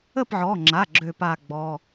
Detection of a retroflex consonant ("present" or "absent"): absent